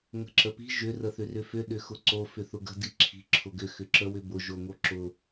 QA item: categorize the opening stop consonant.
click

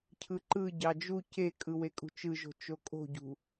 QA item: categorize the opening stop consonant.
aspirated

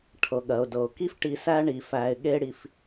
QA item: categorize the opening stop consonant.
aspirated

